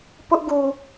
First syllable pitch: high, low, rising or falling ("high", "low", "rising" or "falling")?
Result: high